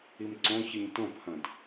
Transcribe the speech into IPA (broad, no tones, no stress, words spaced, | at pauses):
imǀõçɨɲ tõphɐ̃d